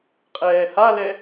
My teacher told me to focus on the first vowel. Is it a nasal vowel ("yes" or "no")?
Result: no